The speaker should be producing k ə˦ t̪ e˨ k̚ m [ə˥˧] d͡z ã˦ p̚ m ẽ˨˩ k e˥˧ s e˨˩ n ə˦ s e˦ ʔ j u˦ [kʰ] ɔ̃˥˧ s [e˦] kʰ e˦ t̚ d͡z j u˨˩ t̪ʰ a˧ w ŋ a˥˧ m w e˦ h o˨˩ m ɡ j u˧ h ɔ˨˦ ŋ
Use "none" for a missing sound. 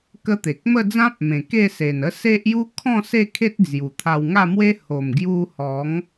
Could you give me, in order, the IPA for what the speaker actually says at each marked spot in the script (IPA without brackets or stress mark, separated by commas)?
ə˥˧, kʰ, e˥˧